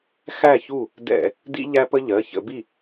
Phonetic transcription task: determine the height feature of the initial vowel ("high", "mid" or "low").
low